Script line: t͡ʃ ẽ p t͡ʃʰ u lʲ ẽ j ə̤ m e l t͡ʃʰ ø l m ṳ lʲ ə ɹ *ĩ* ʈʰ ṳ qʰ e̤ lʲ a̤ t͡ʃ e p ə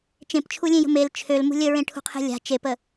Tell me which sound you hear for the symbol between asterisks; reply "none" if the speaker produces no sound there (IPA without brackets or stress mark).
ẽ